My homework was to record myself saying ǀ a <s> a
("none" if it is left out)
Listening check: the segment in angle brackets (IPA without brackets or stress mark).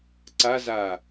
z